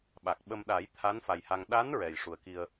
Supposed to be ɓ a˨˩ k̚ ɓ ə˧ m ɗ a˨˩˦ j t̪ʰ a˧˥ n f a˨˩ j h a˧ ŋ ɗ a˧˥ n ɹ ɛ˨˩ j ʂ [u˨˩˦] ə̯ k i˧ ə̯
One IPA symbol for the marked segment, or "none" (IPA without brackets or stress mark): u˨˩